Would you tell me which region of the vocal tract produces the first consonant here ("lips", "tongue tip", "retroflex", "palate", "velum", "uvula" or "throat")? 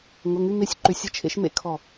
velum